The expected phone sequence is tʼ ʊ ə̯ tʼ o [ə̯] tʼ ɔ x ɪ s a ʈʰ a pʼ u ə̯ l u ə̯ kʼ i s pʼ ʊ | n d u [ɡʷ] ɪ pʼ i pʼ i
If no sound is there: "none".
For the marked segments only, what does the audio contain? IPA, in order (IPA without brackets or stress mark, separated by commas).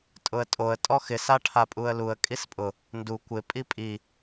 ə̯, kʷ